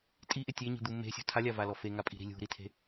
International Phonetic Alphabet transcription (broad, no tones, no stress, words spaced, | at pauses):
tʼiʔɪ tʲeɲi̤d̪u me̤sʲṳ tʰalʲavalɔ feŋapʼi̤ɾi̤ lʲṳɾitʰe̤